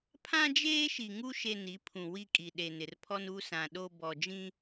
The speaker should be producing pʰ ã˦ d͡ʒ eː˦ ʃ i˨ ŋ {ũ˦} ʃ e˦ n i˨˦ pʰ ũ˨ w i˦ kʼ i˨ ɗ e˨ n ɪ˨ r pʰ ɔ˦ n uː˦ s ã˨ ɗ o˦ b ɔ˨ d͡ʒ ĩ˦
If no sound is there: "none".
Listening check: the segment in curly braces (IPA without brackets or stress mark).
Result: u˦